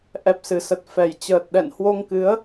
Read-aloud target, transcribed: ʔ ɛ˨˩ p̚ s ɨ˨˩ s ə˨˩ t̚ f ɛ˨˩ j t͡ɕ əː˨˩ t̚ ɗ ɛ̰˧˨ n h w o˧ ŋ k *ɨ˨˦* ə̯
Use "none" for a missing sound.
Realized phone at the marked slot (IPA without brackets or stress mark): ɨ˨˦